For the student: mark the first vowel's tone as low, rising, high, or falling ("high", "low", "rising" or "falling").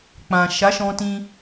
low